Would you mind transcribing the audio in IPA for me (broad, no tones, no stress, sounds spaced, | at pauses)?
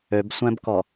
ø b sʷ ɛ̃ b k ɔ